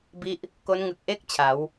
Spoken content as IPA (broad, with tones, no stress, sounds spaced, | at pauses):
b i˦˥ ʔ | k o˦˥ n ŋ ɯ˨˩ k̚ ʔ e˥˩ k̚ t͡ɕʰ a˩˦ w